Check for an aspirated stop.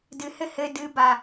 absent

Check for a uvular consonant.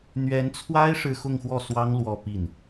absent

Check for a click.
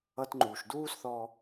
present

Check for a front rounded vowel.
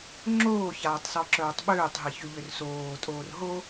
present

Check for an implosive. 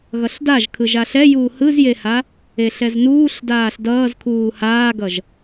absent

